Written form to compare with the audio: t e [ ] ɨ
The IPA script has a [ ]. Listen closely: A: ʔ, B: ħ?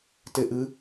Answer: A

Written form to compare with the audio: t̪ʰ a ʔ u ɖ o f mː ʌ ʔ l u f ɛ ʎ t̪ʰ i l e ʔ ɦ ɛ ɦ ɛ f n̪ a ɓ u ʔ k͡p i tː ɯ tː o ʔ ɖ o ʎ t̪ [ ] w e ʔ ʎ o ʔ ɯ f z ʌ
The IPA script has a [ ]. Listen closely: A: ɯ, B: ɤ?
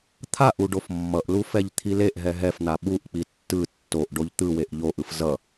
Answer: A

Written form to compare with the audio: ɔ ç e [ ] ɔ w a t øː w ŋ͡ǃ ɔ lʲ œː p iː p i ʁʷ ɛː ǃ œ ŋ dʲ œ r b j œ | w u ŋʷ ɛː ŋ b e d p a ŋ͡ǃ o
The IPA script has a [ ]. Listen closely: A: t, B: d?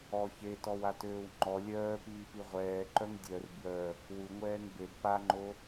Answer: A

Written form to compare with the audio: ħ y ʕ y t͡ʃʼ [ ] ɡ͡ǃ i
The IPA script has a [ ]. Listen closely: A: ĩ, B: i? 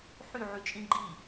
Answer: A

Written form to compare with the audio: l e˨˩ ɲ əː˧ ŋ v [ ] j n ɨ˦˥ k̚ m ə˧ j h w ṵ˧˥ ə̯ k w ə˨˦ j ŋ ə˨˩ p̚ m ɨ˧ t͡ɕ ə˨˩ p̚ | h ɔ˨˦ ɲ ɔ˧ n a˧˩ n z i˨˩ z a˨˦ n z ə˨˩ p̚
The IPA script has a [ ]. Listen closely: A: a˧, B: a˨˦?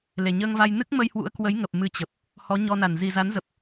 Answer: A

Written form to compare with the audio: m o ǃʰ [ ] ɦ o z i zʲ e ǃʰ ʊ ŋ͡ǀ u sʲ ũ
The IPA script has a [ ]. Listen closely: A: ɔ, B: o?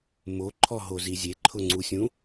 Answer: A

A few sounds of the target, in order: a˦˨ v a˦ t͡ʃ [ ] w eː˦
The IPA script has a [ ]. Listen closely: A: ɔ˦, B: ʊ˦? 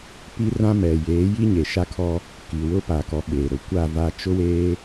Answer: B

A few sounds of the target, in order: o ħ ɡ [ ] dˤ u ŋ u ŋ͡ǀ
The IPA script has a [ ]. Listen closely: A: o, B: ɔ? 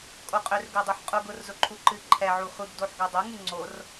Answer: A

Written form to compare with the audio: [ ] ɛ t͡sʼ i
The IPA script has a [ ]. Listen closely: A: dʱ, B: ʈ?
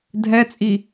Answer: A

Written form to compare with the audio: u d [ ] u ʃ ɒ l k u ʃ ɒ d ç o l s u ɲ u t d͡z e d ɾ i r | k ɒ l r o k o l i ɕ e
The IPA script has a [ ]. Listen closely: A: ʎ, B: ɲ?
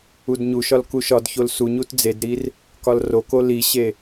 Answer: B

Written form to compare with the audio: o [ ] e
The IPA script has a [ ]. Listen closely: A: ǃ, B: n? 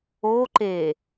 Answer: A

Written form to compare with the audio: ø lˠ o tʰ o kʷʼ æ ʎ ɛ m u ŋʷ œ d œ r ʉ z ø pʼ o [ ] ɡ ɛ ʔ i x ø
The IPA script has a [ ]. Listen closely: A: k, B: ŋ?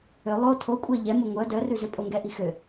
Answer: B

